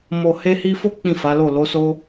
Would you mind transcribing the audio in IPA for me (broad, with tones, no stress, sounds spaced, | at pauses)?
m o˨ h e˧ h i˧ f o˦ k͡p ĩ˦˨ f a˨˦ l o˦˨ l o˨˦ s o˦